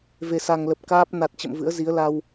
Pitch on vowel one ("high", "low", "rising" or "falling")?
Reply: low